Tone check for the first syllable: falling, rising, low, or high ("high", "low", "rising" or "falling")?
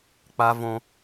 high